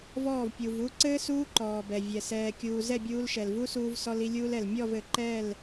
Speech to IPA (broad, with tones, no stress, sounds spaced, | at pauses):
v ɔː˦˨ v pʲ u˨ v u˦ ǀ ɘː˦ s uː˦ ǃ ɔː˨ b ɛ˨ vʲ ɛ˨ s ɛː˨ kʲ uː˨ z ɛ˦˨ bʲ uː˧ l ʃ ɛ˨ l v u˦ s uː˧ v s ɔ˧ l i˧ lʲ uː˦ l ɛ˨ l mʲ ɔ˦˨ v ɘ˨ ǃ ɛː˦˨ l